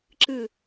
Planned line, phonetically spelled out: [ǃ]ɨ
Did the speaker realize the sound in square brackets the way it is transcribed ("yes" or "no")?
no